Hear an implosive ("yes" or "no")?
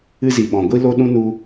yes